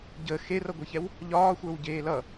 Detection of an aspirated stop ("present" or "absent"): absent